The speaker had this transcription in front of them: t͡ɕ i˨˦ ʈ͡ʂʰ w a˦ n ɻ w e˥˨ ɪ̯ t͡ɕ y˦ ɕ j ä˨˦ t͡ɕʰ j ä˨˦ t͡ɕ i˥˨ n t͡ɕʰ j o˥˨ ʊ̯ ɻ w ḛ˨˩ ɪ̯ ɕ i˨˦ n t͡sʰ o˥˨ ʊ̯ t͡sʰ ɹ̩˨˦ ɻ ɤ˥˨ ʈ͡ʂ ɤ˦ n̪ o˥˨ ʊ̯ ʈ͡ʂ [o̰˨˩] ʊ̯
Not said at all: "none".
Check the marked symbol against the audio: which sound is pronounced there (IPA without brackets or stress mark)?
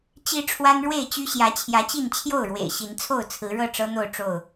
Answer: o˥˨